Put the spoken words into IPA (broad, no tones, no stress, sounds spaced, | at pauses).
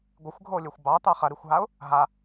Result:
ɡʷ ɪ xʷ ɡʱ o lʲ ø xʷ b ɑ t̪ ɑ χ ɐ ɾ i xʷ ɦ a ʊ̯ | ɦ a